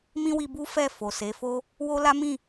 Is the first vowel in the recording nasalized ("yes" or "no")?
yes